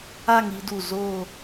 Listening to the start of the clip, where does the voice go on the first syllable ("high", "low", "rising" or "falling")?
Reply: falling